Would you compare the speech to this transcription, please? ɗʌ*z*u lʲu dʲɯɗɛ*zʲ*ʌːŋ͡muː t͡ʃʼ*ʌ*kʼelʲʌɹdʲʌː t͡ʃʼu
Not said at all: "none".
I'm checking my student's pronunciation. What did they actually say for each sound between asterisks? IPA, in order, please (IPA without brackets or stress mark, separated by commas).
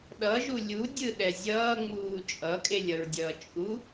ʒ, zʲ, ʌ